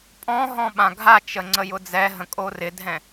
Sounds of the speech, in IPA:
pʼ ɔ̃ ɦ ɔ̃ ɓ ã ɡʱ a t͡ʃ ə ŋ͡ǀ ə j ʊ d͡z ɛ ɦ ə̃ kʼ o r ɪ dʱ ɛ̃

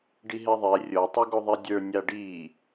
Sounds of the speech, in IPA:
ɖ i ɦ e ðˤ e rʲ o tˤ i ɡ o ðˤ i dʲ ə˞ nʲ a ɖ i

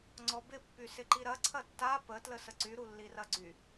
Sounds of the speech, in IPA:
ŋ͡ǀ ɔ b ɪ pː y s ɪ ǃ i ɾ ɐ ǀʰ ɐ tː a p ə t l ə s ə ǀ y ɾ u lː i r ɐ ɡ͡ǀ y

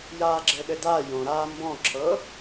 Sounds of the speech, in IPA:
j aː ɡ͡ǁ ɘ ɗ ɘ d a j õ ɾ aː m b ɔ̃ ǁʰ ɤ

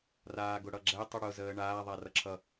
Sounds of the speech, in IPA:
r aː ɡ ʊ ɽ ʌ ɡ͡ǁ ɛ tˤ u ɽ ʊ z əː ɳ aː ðˤ a r ʌ ǁʰ ʌ

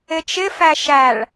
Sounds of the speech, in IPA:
ɪ t͡ʃ ɪ f æ ʃ æ ɭ

